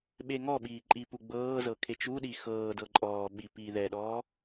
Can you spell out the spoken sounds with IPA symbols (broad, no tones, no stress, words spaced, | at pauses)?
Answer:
ɓeŋɔɓiː ǃʼipuɡ͡bɤːzɤ kʰet͡ʃuɗi xɤː dɤǃʼɔːɓi piːðɛɗɔː